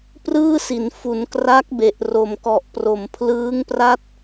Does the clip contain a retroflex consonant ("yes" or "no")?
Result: no